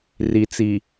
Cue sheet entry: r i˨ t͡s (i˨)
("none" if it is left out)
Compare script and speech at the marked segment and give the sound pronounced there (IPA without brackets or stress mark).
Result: i˨